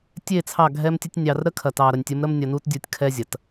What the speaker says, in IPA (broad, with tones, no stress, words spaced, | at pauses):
tʲe˦˨t͡sʰɑ˦˨ɡʱɛ˦mtʲə˦tʲ nʲɑ˨rɾə˦ kʰɐ˨tɑ˨ɾɐ˨nʲtʲə˨˦m ɾə˦mnʲɐ˨nu˦tdʲu˨tʲ kʰɛ˦zʲɐ˨t